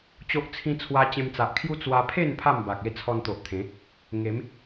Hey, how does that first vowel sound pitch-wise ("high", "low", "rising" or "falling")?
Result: high